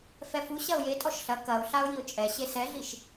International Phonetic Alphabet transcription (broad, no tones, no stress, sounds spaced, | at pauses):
f ɛ f u ɕ ɐ ʊ̯ j e tʼ ɔ ʃ ɬ ɐ k ɐ ʊ̯ ɬ a ʊ̯ j i ʊ̯ t͡ʃʼ ɛ ɕ e s ɛ ɮ i ʃ